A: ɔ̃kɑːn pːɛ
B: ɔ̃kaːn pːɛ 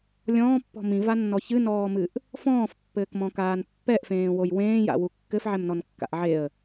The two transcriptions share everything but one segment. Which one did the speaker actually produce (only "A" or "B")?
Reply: B